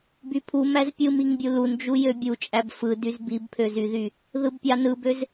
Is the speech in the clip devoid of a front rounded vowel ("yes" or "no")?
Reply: no